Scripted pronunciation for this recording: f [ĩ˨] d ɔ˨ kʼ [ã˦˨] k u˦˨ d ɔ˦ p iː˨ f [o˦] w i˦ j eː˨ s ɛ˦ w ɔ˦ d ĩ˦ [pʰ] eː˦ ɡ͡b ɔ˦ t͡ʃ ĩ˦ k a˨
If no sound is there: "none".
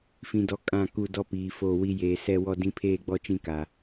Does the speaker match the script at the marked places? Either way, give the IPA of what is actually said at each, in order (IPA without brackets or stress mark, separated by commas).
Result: ĩ˨, ã˦˨, o˦˨, pʰ